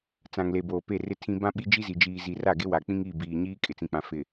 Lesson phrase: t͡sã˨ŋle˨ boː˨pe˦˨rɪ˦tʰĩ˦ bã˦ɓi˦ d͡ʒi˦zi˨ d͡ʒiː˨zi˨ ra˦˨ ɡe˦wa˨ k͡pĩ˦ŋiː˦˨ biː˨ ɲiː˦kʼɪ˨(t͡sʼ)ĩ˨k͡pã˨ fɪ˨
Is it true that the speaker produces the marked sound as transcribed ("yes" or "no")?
no